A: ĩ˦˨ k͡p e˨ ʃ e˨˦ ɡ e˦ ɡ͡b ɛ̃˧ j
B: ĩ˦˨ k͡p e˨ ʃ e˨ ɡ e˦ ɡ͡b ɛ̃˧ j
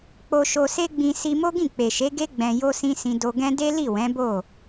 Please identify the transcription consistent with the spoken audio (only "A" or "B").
A